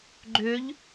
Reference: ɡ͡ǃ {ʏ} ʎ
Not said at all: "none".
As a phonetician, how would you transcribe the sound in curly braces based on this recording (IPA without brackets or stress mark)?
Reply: ʏ